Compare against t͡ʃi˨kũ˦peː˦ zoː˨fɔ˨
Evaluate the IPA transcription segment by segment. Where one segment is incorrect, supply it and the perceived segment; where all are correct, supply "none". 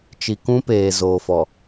eː˦ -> eː˨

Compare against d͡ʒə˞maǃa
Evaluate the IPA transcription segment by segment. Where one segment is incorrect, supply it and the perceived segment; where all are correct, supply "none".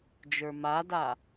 ǃ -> d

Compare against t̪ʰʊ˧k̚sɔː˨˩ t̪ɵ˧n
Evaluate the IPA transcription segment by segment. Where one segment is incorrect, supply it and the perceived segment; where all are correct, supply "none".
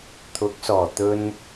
ʊ˧ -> ʊ˨˥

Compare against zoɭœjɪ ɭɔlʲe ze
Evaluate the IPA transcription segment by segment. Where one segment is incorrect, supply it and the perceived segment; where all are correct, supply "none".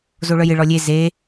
none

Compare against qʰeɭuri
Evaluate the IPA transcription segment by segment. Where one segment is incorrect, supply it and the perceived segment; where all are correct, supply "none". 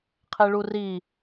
none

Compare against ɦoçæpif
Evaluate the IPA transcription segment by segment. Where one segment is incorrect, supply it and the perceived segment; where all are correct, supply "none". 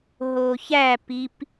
f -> p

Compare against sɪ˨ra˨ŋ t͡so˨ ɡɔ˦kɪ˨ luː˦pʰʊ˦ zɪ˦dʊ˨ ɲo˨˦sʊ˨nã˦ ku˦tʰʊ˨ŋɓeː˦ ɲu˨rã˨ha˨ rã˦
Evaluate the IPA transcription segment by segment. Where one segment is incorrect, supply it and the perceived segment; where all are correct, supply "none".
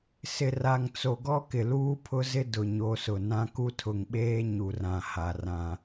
none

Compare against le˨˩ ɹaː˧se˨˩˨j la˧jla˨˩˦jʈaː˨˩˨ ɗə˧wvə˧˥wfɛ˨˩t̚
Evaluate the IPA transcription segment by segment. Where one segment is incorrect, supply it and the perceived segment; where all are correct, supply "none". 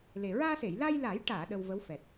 none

